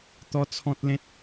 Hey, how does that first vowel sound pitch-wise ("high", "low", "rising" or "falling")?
high